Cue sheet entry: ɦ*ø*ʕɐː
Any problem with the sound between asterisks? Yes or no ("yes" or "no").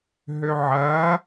no